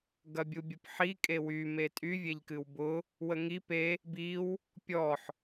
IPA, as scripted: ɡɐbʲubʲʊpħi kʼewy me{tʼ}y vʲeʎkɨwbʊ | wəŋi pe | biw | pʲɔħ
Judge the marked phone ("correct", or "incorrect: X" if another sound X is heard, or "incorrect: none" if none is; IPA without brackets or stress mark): correct